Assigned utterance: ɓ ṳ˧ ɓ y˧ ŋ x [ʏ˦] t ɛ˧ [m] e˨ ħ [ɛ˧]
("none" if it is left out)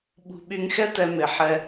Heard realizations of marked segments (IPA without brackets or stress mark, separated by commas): ɛ˦, m, ɛ˧